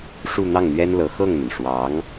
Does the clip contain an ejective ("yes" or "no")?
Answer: no